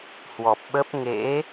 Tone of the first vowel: low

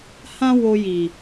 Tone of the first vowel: high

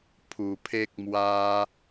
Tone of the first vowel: low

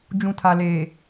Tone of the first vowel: low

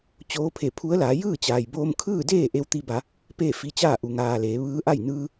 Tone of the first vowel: rising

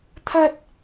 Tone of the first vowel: high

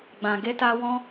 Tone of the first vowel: low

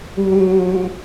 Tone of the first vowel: low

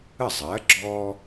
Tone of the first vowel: falling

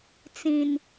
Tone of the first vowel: low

